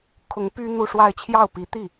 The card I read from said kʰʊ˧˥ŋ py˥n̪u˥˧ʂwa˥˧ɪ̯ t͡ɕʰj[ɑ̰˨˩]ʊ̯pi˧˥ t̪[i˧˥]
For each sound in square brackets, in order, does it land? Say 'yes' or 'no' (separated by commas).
no, no